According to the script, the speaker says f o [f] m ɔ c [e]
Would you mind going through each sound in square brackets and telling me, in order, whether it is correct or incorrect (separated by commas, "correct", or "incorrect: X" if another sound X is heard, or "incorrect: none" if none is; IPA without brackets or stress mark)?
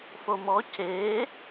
incorrect: none, correct